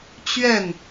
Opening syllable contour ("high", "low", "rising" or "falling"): falling